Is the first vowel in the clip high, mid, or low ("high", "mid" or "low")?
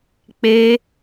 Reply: mid